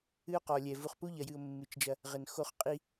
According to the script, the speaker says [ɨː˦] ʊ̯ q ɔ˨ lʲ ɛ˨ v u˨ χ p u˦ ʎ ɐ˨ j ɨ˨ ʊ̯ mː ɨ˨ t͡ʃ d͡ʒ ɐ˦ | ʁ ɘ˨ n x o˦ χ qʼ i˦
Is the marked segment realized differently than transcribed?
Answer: yes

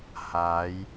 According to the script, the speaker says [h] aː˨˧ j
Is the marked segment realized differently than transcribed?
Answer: no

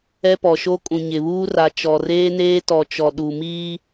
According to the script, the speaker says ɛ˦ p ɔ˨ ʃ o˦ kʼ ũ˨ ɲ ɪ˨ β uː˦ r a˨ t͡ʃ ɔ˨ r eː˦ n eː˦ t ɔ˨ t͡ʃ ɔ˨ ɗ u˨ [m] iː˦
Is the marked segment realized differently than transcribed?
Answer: no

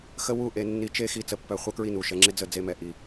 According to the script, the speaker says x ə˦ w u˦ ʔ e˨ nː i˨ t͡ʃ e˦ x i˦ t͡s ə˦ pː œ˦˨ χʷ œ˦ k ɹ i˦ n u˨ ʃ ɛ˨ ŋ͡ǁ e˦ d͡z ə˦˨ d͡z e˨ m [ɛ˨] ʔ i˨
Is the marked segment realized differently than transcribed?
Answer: no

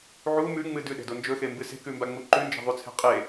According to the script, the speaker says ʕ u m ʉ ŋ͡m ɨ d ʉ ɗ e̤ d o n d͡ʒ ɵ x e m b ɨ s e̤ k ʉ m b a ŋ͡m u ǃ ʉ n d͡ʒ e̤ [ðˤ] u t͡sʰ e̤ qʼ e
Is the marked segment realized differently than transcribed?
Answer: no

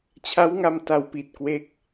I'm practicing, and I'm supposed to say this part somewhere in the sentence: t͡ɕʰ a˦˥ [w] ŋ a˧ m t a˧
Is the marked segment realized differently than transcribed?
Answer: no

